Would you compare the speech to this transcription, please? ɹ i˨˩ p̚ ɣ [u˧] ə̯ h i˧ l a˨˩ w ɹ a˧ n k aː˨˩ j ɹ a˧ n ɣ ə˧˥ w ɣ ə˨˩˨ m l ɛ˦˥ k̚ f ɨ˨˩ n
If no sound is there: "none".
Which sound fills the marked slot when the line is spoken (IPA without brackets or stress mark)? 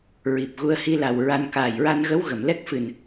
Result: u˧